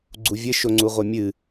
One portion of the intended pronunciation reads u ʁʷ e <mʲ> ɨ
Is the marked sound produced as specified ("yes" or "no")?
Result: yes